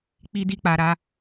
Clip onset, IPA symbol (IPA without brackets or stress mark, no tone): k͡p